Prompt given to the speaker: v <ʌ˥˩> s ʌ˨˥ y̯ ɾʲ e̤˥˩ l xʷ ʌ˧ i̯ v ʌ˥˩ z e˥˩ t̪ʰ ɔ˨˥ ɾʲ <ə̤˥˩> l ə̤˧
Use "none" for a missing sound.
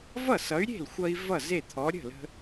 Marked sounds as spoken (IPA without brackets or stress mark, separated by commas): ʌ˥˩, ə̤˥˩